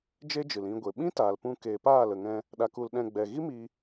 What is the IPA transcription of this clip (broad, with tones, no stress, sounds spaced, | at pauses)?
d͡ʒ e˦ d͡ʒ ɨ˨ l ĩ˧ ɡʷ e˨ ɓ ĩ˦ t aː˨ l p ũ˦ k e˧ p aː˦˨ l ə˨ ŋ ɛ̃˧ | ɗ a˧ k u˧ l ɗ ɛ̃˧ ɡ͡b ɛ˨ ɣ i˦ m i˧